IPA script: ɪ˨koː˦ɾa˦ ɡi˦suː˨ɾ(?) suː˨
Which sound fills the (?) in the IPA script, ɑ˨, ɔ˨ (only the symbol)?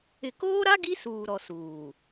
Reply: ɔ˨